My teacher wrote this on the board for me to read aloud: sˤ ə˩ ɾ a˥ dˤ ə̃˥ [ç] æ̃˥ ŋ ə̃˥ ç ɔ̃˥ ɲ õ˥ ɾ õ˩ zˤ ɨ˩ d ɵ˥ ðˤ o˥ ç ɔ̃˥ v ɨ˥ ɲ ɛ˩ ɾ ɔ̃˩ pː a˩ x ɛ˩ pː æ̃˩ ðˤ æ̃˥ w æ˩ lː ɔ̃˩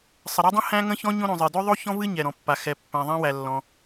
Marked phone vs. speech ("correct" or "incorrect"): incorrect